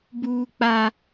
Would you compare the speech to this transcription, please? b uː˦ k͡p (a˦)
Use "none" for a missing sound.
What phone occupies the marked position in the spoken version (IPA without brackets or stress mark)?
a˦